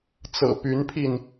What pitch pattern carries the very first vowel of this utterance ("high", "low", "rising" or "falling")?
low